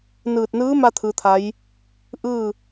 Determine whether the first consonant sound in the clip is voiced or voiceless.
voiced